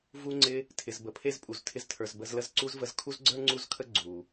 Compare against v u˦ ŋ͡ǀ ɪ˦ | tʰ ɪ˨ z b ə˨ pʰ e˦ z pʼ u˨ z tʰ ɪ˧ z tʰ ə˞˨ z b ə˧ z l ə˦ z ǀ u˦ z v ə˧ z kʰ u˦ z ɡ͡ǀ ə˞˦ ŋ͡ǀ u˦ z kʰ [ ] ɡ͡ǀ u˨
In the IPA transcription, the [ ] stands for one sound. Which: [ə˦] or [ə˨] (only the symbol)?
ə˦